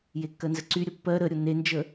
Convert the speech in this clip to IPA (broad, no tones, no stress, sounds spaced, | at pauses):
j e kː ɜ n z ə ǀ y ɾʲ ə pː ɜ ɾ ə ɾʲ o n e n d͡ʒ ə